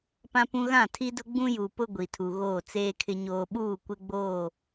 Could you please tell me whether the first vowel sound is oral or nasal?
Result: nasal